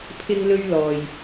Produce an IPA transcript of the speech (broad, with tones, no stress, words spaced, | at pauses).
pʰɪ˥ŋlɵ˥ɥlɔː˨j